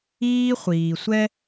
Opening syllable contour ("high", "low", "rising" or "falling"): high